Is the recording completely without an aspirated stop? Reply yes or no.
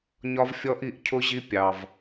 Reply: no